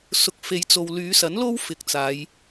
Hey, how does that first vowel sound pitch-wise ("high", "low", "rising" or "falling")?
rising